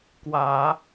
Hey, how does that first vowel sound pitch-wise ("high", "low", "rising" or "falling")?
low